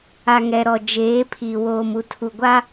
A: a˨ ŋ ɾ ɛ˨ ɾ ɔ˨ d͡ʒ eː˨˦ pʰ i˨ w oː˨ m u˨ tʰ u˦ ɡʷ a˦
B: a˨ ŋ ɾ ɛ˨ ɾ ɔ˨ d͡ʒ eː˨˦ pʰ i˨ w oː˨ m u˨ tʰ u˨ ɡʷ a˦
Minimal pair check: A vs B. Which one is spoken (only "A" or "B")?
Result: B